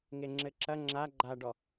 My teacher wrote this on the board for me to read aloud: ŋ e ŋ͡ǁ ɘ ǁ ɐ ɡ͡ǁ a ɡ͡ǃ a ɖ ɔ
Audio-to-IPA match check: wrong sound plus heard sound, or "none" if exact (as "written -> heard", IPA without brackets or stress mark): ɡ͡ǁ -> ŋ͡ǁ